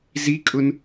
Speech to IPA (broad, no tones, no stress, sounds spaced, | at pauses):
z i kʼ ʊ n